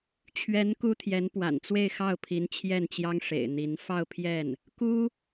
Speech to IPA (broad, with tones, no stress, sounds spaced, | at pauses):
t͡ɕʰ ɥ ɛ˧˥ n k u˥ t̪ʰ j ɛ˧˥ n p w a̰˨˩ n t͡s w e˥˧ ɪ̯ x ɑ˥˩ ʊ̯ pʰ i˧˥ n t͡ɕʰ j ɛ˥˩ n t͡ɕ j ɑ˥ ŋ ʂ ḛ˨˩ ɪ̯ n̪ i˧˥ n f ɑ˥˧ ʊ̯ pʰ j ɛ˥˩ n | k u˥